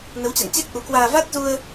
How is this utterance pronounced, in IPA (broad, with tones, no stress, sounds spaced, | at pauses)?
n ə˨˦ w t͡ɕ a̰˧˨ n t͡ɕ ɛ˦˥ k̚ ʔ u˨˦ k w aː˧ v a˦˥ t̚ z u˧ ə̯